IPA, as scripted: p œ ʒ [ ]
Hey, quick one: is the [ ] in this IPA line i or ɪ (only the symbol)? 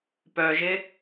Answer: ɪ